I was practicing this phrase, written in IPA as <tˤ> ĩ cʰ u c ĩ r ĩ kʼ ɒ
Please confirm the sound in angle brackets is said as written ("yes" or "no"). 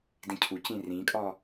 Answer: no